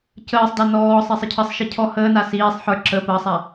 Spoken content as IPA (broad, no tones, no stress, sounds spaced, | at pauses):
c əː sˤ d a n ɔː sˤ i sˤ ə cʰ ə sˤ ʃ i cʰ ɔ h əː n a s iː sˤ ħ ə˞ ǁ ə p əː sˤ a